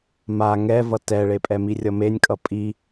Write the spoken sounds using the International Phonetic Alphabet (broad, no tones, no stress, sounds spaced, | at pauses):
m a ŋ ɛ v ʌ t ɛ ɭ e pʼ ɛ m i rʲ ʌ m e nʲ kʼ ʌ pʼ i